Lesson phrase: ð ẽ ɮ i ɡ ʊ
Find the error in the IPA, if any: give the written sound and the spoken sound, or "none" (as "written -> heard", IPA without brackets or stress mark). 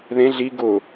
none